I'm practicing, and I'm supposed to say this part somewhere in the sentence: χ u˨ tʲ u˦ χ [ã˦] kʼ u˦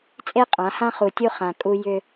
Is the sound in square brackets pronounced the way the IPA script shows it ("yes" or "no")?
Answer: no